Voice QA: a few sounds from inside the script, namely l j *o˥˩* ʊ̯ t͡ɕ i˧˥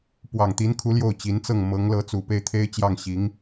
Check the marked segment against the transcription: correct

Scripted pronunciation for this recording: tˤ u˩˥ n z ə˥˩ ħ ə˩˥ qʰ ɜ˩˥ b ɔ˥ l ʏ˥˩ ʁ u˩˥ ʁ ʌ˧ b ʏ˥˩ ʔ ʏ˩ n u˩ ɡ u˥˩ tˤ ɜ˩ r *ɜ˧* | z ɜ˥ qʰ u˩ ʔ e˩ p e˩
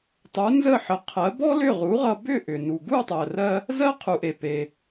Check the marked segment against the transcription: correct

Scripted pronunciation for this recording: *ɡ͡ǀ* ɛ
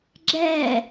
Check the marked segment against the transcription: incorrect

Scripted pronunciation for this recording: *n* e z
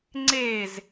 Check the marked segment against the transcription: incorrect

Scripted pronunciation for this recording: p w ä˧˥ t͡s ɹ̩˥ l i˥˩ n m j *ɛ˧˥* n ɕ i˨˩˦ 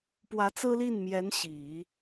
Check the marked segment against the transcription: correct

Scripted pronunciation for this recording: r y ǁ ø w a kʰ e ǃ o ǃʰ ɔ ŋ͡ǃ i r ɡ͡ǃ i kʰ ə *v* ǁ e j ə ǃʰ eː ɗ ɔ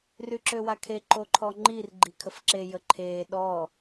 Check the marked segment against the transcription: incorrect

